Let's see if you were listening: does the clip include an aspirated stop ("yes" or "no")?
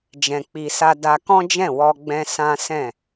no